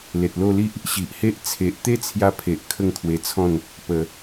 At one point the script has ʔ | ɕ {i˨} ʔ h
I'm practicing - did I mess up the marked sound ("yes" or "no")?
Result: no